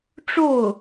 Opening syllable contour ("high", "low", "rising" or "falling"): falling